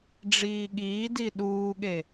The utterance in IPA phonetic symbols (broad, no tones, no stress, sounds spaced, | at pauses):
ɖ͡ʐ iː ɠ iː d i ɗ uː ɠ e